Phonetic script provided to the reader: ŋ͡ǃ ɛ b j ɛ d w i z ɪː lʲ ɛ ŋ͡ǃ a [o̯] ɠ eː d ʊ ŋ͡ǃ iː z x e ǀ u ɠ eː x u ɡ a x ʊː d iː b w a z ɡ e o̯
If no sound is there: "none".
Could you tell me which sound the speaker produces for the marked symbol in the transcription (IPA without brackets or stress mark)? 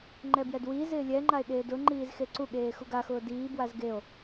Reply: e̯